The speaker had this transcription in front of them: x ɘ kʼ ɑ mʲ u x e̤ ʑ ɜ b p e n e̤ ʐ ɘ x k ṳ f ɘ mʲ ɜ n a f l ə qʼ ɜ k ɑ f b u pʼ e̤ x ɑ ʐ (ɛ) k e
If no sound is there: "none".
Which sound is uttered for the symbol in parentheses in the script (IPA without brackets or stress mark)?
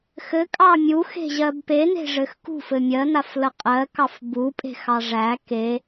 æ